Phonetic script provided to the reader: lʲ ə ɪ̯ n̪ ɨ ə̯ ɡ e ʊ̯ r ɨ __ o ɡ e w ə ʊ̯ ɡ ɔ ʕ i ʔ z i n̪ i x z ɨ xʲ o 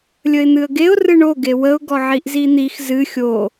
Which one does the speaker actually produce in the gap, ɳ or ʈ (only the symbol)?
ɳ